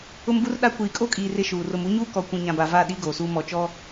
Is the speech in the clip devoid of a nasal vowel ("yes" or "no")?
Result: no